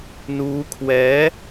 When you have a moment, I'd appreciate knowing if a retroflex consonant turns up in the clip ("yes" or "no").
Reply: no